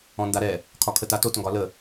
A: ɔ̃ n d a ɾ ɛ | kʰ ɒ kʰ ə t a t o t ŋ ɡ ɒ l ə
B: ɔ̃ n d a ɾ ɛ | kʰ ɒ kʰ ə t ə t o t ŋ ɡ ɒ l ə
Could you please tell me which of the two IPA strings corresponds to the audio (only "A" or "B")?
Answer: A